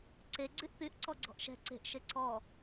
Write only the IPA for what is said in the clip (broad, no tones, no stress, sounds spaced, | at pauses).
ǀ e ɡ͡ǀ y ʔ p y ʔ ǀ ɔ ɡ͡ǀ ɔ̤ ʔ ʃ ɛ̤ ǀ e̤ ʔ ʃ e ǀ ɔ